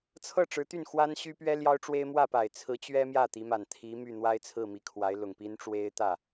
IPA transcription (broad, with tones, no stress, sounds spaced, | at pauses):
t͡sʰ ɤ˥˩ ʈ͡ʂ ɻ̩˧˥ t̪ y˥˩ n x w a˥ n ɕ y˥ p ɥ ɛ˥ l j ɑ˥ ʊ̯ ʈ͡ʂ w e˥ ɪ̯ m w ä˥˩ p a˨˩ ɪ̯ t͡sʰ ɹ̩˧˥ t͡ɕ ɥ ɛ˥ m j ä˥˩ t̪ i˧˥ m a˨˩ n t̪ʰ i˧˥ m y˥˩ n̪ w a˥ ɪ̯ t͡sʰ ɹ̩˥˩ m i˧˥ kʰ w a˧˥ ɪ̯ l ʊ˨˩ ŋ p i˥ n ʈ͡ʂ w e˥ ɪ̯ t̪ ä˥˩